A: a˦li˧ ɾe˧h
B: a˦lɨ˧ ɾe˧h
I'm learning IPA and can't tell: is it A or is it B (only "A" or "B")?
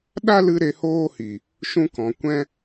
B